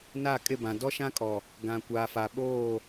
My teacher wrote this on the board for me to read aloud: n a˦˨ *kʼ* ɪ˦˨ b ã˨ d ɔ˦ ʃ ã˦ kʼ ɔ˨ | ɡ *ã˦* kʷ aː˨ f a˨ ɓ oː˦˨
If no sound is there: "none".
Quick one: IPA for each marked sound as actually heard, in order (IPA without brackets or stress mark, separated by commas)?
kʼ, ã˨